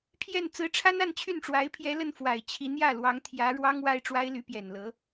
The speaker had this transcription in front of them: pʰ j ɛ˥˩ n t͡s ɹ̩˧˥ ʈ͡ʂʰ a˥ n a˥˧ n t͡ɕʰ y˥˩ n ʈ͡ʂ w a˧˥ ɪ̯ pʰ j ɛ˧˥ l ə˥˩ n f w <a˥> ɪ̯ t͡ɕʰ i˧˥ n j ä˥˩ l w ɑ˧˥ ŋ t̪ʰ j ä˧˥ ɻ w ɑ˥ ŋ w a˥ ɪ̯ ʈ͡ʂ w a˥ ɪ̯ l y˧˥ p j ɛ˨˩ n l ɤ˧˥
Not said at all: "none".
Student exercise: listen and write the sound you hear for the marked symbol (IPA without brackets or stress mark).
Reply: a˨˩